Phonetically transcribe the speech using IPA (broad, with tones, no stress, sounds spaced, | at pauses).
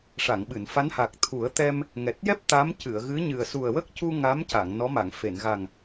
ʂ a˨˩˨ ŋ ɓ ɨ˨˩˨ n f a˧˥ n h a˨˩ k̚ t̪ʰ u˨˩˦ ə̯ t̪ ɛ˧ m | ŋ ɛ˨˩ t̚ j ɛ˦˥ p̚ t̪ a˧˥ m c ɨ˨˩˨ ə̯ ɣ ɨ˧˥ ɲ ɨ˨˩ ə̯ s u˨˩ ə̯ w ə˦˥ k̚ c u˧ ŋ a˧˥ m c a˨˩˨ ŋ n ɔ˧˥ m a˨˩˨ ŋ f e˨˩˨ n ɣ a˨˩ ŋ